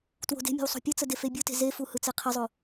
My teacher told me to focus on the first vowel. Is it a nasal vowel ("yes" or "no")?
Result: no